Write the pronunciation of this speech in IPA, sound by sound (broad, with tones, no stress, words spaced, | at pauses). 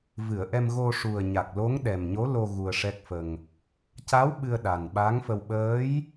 vɨ˨˩˨ə̯ʔɛ˧m ɣo˧ʂu˨˩ə̯ɲa˨˩k̚ lo˧˥ŋɗɛ˨˩mɲo˧˥lo˧ ɣu˧ə̯ʂɛ˦˥k̚fə˧ŋ | ca˧˥w ɓɨ˧ə̯ɗa˨˩nɓa˧˥ŋfə˧w ɓəː˧˥j